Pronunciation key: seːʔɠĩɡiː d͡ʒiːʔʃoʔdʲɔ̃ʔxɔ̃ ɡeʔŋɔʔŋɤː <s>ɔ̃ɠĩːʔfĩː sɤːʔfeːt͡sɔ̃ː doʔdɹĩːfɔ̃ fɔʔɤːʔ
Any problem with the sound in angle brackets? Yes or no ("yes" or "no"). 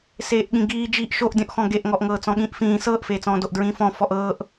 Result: yes